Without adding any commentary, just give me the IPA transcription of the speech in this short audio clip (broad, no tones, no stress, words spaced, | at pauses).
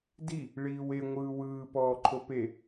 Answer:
di | ɭiːwe ŋʷɯːwɯː pɔːǃʰope